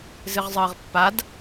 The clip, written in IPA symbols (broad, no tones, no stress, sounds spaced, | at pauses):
z ɨ ʁ zˤ əː ʁ pː a d